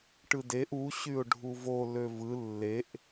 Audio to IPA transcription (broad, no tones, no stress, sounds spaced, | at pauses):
ʈ ɯ d e ʔ u ɕ y ʊ̯ ɖʱ u v o l ø v ɯ lː e ʔ